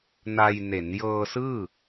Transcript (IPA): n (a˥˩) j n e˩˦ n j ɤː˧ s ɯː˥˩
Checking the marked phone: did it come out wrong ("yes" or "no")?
yes